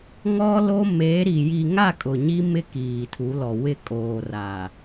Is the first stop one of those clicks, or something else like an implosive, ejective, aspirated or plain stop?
ejective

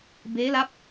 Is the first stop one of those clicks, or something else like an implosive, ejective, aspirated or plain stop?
plain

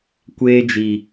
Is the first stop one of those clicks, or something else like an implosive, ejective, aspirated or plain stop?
plain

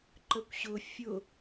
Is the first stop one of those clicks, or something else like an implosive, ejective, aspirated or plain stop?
click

